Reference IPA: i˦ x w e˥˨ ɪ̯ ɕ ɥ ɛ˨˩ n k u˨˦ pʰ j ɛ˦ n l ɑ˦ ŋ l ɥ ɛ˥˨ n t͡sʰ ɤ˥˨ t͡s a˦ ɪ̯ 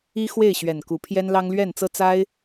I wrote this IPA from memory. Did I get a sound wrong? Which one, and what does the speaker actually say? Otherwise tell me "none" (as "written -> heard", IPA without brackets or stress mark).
t͡sʰ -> t͡s